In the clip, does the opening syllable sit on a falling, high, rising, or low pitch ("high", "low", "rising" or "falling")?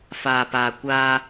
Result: low